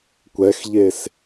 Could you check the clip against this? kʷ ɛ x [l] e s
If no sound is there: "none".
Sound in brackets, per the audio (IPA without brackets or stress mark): ʎ